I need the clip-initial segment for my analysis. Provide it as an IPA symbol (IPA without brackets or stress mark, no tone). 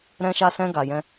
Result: ɾ